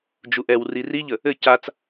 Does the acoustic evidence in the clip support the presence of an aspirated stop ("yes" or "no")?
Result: no